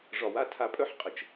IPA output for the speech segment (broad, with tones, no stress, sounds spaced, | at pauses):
ʐ ɒ˨ w a˦ tʰ a˨ pʼ œ˦ ħ qʼ ə˨ t͡ʃ